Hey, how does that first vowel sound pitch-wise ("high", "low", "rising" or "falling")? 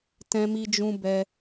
high